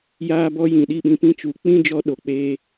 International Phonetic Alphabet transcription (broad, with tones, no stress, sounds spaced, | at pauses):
j aː˦ b ɔ˦ j ĩ˨ ɗ i˦˨ ɓ ĩ˧ p ĩ˦ t͡ʃ u˨ k͡p ĩ˦ d͡ʒ ɔ˧ ɗ o˨ k͡p eː˧